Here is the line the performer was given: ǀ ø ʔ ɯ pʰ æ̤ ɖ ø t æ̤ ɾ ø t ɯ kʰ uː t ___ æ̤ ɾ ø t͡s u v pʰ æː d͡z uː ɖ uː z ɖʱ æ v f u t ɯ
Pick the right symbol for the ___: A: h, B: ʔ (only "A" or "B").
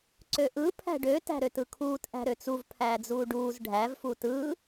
B